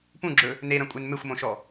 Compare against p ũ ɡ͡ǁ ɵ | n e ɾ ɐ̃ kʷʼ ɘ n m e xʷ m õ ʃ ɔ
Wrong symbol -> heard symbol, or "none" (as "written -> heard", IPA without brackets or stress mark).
ɘ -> e